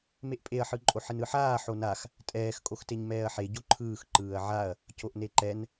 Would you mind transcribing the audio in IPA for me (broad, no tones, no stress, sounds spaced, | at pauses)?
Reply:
m e ʔ pʼ e ɐ̯ ħ ɯ ǃʼ o ħ ɪ n ɯ ħ aː ħ o n a x | tʼ ɛː x kʼ o x t e ɲ m ɛː ɐ̯ ħ e ɟ o ǃʰ ɯː x ǃ ɯː ɐ̯ ʕ a ɐ̯ | c o ʔ n e ǃ ɛ n